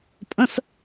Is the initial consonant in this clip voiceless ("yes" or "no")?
yes